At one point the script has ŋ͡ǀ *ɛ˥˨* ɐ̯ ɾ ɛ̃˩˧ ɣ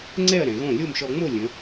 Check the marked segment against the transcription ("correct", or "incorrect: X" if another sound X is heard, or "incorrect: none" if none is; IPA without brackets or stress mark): correct